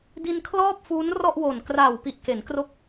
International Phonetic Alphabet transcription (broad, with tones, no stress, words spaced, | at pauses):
di˧nkʰlɔː˥˩p̚fuː˦˥n rɔ˥˩ʔwo˨˩n kra˨˩wpi˨˩ʔke˩˦nkro˦˥k̚